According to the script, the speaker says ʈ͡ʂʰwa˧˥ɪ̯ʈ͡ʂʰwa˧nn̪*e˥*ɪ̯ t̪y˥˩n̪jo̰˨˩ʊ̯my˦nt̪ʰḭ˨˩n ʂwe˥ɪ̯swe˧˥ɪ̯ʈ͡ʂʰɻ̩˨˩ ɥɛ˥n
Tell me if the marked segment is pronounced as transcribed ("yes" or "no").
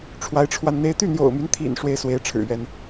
yes